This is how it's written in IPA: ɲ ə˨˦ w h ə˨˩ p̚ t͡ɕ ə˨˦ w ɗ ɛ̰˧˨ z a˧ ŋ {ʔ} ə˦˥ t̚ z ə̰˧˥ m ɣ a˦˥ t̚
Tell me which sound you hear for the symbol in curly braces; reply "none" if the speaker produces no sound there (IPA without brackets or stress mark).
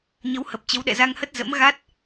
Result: h